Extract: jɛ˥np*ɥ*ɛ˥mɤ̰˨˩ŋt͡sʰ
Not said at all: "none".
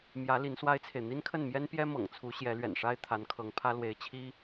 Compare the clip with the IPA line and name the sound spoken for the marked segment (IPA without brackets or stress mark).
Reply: j